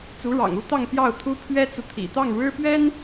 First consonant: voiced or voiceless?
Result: voiceless